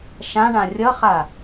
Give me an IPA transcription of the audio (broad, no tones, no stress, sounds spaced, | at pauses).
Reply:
ʃ ã ɳ ã rʲ ʌ χ a